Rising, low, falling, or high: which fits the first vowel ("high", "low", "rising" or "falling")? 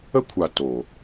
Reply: high